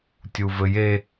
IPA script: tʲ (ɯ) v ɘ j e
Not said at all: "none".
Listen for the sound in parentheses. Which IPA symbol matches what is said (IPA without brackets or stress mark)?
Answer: u